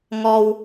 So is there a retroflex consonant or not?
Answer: no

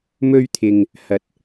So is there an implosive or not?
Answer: no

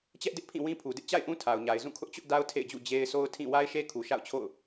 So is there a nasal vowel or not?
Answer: yes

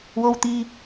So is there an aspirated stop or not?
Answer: no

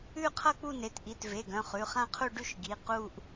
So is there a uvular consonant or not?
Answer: yes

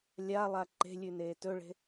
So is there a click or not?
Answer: yes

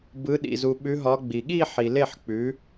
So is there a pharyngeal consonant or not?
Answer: yes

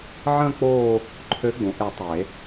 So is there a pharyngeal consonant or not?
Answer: yes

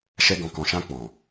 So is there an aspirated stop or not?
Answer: no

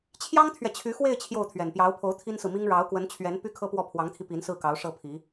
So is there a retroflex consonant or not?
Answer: yes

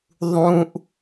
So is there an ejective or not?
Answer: no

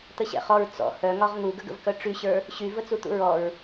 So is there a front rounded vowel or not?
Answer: yes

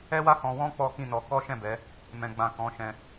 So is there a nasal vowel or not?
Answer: yes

